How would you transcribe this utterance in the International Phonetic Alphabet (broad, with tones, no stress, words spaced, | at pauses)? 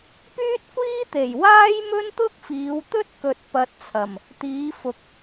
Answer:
pyː˥t̚kʷiː˥t̪e˨˩j waː˥jmɵ˥nt̪ʊ˥k̚ fiː˨˧wt̪ɵ˥t̚kɵ˨t̚ pɐ˧t̚t͡sʰɐ˨˩m | t̪iː˨˧fʊ˨˥k̚